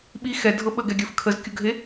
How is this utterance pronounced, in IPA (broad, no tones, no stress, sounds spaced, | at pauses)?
ɓ i x ɛ dʱ ɤ ɓ ə ɡ ɛ ɡʲ ə˞ f kʰ ə z kʲ ʊ ɡʱ e